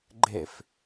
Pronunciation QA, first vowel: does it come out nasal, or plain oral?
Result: oral